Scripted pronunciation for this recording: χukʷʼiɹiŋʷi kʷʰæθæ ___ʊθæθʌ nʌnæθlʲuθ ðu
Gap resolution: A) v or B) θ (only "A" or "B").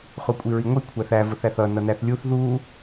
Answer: A